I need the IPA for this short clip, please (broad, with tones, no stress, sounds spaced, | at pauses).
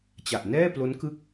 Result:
t͡ɕ a˨˩ ʔ n ɛː˥˩ p l o˦˥ n k ɯ˥˩ k̚